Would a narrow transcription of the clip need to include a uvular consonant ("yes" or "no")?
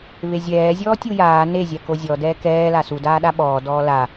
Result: no